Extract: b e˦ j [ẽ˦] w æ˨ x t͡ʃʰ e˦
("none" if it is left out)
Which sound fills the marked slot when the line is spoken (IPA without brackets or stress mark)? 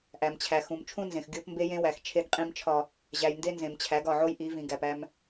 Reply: ẽ˦